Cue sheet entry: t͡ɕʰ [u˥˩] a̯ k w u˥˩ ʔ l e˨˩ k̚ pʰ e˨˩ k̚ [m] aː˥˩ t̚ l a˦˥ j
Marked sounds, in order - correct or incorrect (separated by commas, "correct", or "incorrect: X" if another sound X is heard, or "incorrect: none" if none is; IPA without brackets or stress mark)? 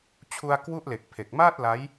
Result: incorrect: u˧, correct